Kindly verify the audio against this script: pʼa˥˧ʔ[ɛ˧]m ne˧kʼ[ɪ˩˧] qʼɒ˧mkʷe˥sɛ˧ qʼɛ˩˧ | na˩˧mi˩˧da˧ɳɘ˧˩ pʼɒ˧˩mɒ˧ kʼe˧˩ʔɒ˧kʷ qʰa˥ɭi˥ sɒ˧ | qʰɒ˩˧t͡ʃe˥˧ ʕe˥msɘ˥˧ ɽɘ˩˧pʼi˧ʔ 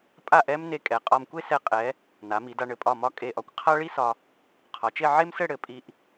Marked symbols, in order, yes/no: no, no

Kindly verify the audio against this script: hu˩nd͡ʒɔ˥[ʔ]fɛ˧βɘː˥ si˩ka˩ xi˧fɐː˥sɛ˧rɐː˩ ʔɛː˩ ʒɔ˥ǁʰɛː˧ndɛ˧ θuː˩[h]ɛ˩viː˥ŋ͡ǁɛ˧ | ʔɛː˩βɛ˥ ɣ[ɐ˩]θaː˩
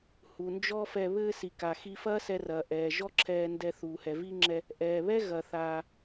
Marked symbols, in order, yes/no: no, yes, yes

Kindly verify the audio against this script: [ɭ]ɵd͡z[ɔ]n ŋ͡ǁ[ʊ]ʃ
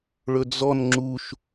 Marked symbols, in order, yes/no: yes, yes, no

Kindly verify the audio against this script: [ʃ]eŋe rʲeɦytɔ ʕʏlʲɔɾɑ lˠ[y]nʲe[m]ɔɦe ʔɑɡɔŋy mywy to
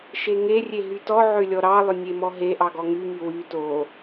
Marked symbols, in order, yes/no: yes, no, yes

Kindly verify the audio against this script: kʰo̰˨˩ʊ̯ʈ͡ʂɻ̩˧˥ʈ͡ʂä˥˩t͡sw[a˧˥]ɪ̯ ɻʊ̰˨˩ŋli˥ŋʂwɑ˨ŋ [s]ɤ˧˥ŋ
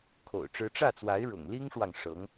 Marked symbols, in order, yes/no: yes, no

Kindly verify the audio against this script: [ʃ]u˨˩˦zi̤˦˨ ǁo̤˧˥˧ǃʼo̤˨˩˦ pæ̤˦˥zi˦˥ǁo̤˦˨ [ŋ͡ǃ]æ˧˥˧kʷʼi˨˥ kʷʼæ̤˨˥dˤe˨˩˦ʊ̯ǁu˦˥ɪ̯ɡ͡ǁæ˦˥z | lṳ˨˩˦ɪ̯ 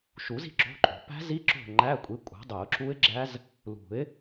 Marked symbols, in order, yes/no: yes, yes

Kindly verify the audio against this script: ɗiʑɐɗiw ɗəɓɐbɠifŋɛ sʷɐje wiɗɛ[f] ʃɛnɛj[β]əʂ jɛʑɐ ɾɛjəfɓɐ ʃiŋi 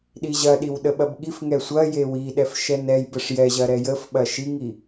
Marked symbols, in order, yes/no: yes, no

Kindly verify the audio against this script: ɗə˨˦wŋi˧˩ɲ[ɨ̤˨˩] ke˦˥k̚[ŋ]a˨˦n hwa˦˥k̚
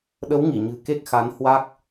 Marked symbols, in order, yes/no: yes, no

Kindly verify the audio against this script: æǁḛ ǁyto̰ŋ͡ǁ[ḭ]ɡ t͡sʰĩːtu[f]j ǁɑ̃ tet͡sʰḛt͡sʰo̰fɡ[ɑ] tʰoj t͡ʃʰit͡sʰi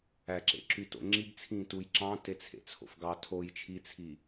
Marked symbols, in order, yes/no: no, no, yes

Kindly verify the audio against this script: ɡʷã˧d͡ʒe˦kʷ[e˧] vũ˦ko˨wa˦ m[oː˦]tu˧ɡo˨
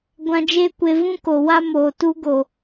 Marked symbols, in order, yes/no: yes, no

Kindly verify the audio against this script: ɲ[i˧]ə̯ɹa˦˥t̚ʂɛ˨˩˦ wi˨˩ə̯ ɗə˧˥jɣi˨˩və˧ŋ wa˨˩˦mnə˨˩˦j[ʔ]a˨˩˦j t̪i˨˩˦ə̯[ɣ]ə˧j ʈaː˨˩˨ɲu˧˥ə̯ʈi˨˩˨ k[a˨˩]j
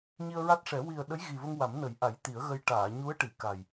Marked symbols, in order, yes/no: yes, yes, yes, yes

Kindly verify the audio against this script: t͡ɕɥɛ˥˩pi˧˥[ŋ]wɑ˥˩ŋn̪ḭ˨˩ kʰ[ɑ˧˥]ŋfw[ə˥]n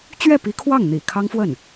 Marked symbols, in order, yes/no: no, no, no

